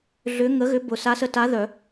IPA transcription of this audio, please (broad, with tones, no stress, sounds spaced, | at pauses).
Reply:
ɮ ʏ˧˥ ŋ ə˧˥ ɣ ʏ˧˥ b ʊ˨˩˦ s a˧˥ s ə˧˥ t a˧˥ ð œ˨˩˦